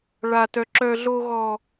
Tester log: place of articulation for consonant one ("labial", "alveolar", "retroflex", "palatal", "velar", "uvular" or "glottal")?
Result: retroflex